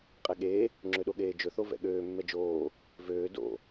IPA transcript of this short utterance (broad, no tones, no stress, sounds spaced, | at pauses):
qʼ ɛ ɠ eː | ŋ͡ǁ ø ɗ o ɠ eː d͡ʒ ɵ θ o v ɛ̰ ɠ øː mː ɛ d͡ʒ oː | v øː d o̰